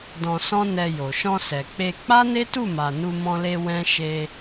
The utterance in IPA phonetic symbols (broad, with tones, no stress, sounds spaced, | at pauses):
d ɔ̃˧ s ɔ̃˦ n ɛ˧ j o˨ ʃ ɔ̃˧ s ɛ˨ k͡p e˧ k͡p a˦ n e˦ t u˦˨ m a˨ n u˧ m ɔ̃˧ l e˧ w ɛ̃˦ ʃ e˧